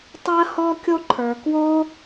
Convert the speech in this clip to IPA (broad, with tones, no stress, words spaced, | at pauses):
tˤɜ˥hɔ˥kʲo˥ǃʰə˞˩ kwo˥